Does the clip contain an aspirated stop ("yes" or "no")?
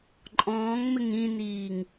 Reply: no